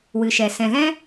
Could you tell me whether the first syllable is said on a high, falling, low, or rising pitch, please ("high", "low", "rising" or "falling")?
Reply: low